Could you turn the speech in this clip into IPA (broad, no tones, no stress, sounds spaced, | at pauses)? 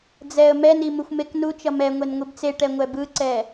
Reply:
d͡z ɛ ə̯ m ɛ n i m u xʷ m e k n u t͡ʃ ʌ m ɛ ŋʷ e n ŋʷ i b t͡s e ʈ ɛ ŋʷ ɛ b ɯ ǀ ɛ